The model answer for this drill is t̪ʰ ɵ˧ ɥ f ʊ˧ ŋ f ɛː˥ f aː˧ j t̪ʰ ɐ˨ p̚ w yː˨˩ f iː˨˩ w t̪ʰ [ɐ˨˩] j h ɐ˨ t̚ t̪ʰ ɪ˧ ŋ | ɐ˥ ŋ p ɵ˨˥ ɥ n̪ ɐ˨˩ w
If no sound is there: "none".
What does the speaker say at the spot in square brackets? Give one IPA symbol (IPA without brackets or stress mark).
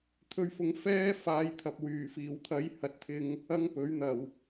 ɐ˨˧